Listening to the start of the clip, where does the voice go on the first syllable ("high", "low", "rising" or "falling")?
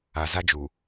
low